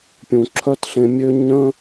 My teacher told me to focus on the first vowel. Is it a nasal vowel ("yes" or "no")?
yes